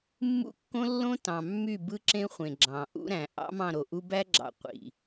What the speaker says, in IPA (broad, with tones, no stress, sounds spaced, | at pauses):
mː ṵ˦ kː õ˦ lː õ˦ t ɑ̃˨ mː y˦˨ b ɯ˦ ǁ ẽ˦ χʷ ẽ˨ ɡ͡ǁ ɑ̃˨ ʔ ṵ˦ ɾ æ̃˨ ʔ ɑ̰˦ m ɑ̃˦˨ ɾ o˨ ʔ u˦ b æ˦ ɡ͡ǁ ɑ̰˨ qʷ ḭ˨